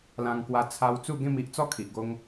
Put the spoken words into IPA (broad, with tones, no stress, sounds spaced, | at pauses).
l ã˧ ŋ k w a˧ t͡sʰ a˧ w t͡s u˥˧ ɡ ẽ˥˧ m i˦ ʔ t͡s ɔ˦ kʰ i˨ ʔ ɡ o˧ ŋ